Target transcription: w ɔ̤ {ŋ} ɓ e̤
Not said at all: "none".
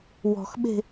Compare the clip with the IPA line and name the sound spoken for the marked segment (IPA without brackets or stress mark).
x